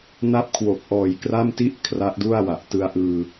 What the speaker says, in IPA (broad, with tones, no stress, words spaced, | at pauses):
na˦˥p̚kʰwo˨˩k̚ʔɔː˨˩j kra˥˩mti˥˩ʔ kʰra˦˥ʔdu˥˩a̯wa˨˩ʔ tɯ˧a̯ʔɯː˧